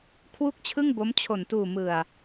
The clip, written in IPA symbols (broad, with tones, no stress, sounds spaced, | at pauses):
kʰ w u˥˩ k̚ t͡ɕʰ ɯ˥˩ ŋ b o˦˥ m t͡ɕʰ o˨˩ n t uː˨˩ m ɯ˨˩ a̯